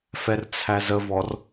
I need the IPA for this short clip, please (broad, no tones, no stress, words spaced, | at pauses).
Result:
fɛrt͡sʰæzəvɔr